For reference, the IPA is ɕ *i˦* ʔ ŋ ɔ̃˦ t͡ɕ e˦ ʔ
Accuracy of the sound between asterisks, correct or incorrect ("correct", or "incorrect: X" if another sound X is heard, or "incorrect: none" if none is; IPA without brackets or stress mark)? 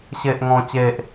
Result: incorrect: e˦